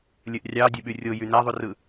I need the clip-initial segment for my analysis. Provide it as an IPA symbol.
lʲ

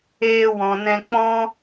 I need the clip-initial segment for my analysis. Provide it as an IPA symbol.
eː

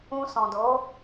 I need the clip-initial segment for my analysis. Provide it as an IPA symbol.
ũ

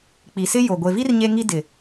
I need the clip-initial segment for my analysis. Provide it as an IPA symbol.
k͡p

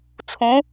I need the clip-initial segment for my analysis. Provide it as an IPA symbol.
t͡sʰ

